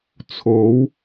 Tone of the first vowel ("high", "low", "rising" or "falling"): rising